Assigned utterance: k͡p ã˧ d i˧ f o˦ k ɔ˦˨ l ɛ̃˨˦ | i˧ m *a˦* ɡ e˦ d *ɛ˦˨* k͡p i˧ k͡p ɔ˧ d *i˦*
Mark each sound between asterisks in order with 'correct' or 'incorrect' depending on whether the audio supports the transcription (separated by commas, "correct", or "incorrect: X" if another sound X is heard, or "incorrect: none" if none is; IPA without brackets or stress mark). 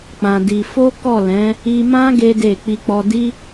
incorrect: ã˦, incorrect: e˦˨, correct